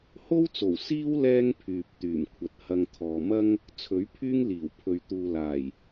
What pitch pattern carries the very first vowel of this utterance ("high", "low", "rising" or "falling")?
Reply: high